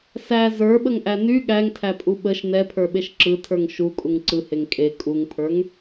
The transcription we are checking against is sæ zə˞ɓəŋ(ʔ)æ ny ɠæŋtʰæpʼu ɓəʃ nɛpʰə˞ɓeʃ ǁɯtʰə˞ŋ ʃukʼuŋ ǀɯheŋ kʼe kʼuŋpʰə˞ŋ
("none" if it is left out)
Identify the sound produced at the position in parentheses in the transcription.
ʔ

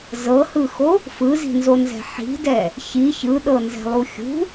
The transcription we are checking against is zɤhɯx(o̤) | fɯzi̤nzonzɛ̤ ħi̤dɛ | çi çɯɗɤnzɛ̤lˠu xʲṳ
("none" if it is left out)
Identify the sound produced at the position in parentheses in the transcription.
o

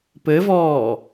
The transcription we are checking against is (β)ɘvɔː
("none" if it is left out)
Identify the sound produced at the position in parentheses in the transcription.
p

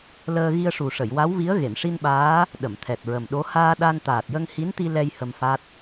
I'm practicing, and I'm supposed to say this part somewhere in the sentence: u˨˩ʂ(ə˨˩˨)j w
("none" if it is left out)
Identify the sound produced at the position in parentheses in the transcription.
ə˨˩˨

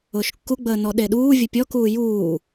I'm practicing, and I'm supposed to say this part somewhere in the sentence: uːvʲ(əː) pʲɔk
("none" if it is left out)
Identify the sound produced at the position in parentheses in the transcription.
ə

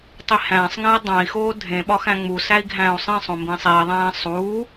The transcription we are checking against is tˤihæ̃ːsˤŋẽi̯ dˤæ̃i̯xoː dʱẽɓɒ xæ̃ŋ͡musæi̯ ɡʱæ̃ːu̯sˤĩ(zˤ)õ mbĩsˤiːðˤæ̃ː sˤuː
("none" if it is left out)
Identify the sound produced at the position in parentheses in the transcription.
sˤ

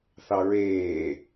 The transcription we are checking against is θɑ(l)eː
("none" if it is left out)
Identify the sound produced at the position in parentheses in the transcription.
ɹ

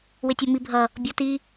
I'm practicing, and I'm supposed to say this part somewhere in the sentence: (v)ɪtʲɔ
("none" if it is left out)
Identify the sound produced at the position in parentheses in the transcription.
w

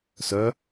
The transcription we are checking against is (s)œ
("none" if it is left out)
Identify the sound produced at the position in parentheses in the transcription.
s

